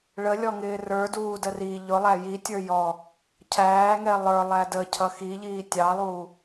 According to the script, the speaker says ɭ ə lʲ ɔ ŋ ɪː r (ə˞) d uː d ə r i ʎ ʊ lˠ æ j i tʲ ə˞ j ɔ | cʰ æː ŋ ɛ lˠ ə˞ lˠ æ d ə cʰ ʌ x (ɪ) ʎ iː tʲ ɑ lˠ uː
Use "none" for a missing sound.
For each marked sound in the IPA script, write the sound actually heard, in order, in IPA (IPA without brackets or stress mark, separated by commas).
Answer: ə˞, i